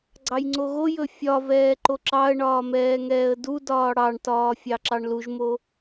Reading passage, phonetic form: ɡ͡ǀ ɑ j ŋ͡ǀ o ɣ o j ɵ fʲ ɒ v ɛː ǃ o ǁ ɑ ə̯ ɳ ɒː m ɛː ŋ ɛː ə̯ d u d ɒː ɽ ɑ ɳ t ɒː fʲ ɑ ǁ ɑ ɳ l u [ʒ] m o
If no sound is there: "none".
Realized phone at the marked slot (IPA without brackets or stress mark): ʒ